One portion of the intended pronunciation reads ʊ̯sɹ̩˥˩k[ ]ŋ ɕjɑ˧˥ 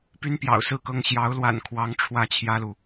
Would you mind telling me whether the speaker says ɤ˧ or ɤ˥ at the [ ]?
ɤ˥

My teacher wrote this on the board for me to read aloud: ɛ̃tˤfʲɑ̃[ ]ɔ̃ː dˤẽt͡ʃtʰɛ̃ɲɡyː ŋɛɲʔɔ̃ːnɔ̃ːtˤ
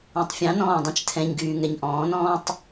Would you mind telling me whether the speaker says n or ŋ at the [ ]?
n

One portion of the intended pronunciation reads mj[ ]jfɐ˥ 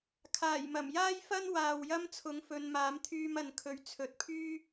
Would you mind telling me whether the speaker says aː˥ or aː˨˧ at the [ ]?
aː˥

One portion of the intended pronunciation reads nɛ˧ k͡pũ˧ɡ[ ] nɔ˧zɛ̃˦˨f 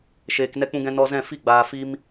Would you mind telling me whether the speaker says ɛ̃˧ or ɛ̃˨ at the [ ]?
ɛ̃˧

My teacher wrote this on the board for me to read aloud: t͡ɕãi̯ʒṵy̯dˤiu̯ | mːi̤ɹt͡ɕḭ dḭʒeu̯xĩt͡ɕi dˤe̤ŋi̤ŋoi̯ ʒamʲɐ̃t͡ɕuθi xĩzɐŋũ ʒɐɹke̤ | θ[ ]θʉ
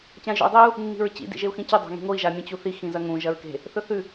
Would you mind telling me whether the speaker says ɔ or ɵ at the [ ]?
ɵ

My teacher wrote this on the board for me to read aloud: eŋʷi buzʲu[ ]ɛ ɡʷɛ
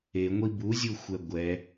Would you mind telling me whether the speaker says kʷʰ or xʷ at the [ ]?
xʷ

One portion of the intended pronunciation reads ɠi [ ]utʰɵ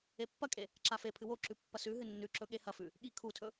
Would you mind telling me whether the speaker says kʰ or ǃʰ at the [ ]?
kʰ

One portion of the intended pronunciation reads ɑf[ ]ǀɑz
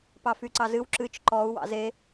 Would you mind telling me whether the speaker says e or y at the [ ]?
y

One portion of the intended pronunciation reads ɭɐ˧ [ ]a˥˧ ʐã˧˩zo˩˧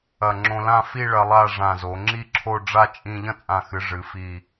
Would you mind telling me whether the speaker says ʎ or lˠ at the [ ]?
lˠ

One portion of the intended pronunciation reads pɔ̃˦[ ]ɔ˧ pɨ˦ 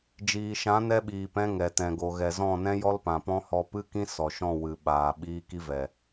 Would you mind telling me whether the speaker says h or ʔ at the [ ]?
h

